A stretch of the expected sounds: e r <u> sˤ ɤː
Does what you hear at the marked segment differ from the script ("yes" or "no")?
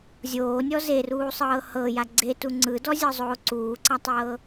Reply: yes